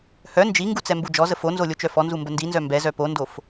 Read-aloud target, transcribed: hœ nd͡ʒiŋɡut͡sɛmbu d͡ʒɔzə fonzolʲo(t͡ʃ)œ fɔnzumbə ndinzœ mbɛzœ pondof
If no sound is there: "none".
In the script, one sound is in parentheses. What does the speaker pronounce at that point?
t͡ʃ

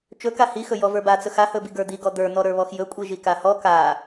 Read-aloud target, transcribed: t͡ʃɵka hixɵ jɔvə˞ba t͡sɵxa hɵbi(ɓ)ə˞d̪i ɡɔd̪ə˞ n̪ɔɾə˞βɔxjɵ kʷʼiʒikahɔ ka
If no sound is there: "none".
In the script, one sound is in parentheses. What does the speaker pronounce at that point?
ɡ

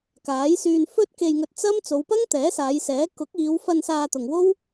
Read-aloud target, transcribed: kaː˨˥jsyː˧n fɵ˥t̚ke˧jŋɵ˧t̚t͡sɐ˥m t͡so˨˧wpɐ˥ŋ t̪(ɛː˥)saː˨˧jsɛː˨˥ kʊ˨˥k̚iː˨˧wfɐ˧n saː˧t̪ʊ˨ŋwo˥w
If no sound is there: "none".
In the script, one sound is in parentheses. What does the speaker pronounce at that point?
ɛː˨˥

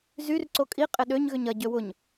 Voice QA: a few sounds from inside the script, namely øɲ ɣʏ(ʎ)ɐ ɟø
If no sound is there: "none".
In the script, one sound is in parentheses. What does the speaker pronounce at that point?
ɲ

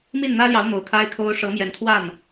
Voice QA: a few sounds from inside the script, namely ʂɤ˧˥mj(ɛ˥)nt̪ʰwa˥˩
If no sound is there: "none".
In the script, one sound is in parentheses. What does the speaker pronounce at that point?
ɛ˧˥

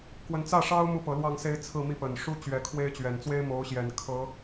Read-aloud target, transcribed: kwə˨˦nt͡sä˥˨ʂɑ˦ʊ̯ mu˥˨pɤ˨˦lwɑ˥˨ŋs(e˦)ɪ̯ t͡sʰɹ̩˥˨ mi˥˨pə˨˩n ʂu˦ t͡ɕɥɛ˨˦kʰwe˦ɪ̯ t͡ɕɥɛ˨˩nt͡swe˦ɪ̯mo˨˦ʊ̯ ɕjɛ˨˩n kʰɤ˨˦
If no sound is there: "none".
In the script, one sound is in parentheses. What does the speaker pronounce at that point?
e˦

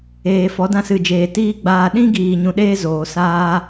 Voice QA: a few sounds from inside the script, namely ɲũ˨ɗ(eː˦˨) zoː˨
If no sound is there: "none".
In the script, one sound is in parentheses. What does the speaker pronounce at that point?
eː˧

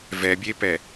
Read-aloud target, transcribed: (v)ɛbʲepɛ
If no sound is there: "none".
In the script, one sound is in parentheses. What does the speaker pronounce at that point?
v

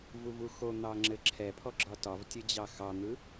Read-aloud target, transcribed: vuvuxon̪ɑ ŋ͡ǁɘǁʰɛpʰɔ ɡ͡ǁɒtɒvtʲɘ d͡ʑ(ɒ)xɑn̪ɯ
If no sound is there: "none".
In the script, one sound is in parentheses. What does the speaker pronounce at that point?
ɑ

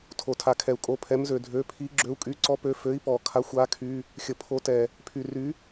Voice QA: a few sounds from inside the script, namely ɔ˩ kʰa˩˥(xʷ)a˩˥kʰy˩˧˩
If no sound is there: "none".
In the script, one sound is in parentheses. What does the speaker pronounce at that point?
xʷ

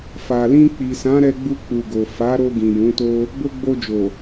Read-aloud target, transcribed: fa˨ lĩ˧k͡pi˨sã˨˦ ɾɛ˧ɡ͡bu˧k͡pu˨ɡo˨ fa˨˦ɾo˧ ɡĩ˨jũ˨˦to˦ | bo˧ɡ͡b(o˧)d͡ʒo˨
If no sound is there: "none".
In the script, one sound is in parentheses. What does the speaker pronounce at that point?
o˧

